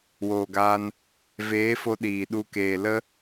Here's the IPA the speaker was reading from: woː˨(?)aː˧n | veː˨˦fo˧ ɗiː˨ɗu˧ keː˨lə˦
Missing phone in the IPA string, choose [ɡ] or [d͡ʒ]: ɡ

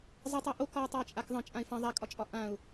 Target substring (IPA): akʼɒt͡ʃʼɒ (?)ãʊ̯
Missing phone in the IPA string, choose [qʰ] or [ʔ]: ʔ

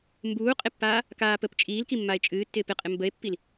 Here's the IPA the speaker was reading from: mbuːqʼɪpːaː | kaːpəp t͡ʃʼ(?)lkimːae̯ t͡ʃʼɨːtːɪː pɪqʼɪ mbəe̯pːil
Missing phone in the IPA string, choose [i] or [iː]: iː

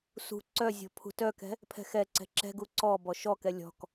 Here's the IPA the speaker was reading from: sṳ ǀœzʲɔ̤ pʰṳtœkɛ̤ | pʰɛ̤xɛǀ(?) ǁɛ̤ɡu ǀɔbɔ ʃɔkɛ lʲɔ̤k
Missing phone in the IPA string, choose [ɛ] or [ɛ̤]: ɛ̤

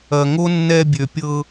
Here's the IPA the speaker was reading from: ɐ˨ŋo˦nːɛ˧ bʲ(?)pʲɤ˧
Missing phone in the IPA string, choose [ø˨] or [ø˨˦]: ø˨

